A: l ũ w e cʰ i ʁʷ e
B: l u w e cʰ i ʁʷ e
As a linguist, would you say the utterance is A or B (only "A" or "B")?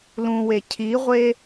A